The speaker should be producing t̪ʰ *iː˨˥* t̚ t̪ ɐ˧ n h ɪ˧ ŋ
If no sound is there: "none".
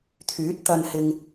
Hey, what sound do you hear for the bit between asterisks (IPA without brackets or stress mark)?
yː˨˥